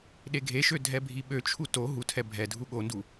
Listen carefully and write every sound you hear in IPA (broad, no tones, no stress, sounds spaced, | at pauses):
ɗ e ɡʱ e ʃ ø dʱ ɛ bʱ i ɓ ø t͡ʃʰ u t o ɦ u tʰ ɛ bʱ ɛ dʱ u ɠ o n d u